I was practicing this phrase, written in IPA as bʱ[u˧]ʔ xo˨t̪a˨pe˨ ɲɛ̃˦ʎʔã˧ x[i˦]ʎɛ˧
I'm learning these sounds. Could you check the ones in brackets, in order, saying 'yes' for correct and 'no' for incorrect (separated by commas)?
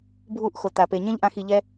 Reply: no, no